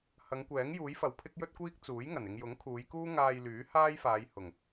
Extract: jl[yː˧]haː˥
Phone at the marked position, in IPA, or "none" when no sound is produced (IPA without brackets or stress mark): yː˨˥